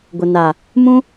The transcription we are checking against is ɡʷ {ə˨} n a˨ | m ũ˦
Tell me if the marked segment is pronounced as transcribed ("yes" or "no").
yes